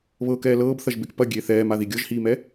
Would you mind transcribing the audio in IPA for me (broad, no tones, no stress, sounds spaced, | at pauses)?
β ɤ k ɛː l ɤː b θ ɐ ʒ b e k p ɐ ɡʲ e θ ɛː m a ð i ɡʲ ɤ ʒ h iː m ɛ